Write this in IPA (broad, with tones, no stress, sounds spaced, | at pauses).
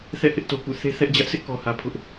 θ ɛ̰˦˨ h ɪ˦ ʔ t o˨ k ṵ˦˨ θ e˦ θ ɛ˦ ʔ d͡ʑ ä˦ ʔ sʰ ɪ˦ ʔ k ɔ˨ h ä˨ pʰ ʊ˦ ʔ